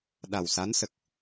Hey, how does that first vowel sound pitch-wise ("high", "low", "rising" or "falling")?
low